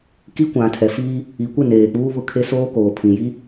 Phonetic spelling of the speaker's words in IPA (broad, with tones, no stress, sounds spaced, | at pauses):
k i˦ kʷ ã˨ tʰ ɛ˨ f iː˦ | i˨ kʷ ɪ˦˨ n eː˨ k͡p uː˦ β ʊ˦˨ kʰ e˦ s oː˦ k oː˨ pʰ ĩ˨ j i˦